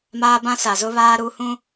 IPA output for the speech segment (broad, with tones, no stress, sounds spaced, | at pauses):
m aː˦ b ã˦ s a˨ z ʊ˦ β aː˦ ɾ u˦ h ũ˦